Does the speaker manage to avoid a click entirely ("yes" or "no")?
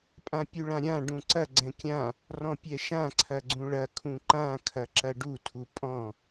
no